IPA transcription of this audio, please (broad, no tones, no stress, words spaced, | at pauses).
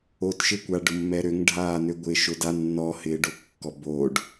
otʃɪkʷa ɖʊmːɛɾøŋɖʱaː nøɡʷɪːʃʊda nːɔhɪːɖo kːɔboːɖ